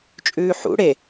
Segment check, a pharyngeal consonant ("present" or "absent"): present